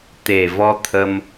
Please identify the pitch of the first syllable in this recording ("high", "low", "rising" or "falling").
low